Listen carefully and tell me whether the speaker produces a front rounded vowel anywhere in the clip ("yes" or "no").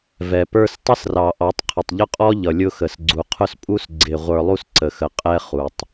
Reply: no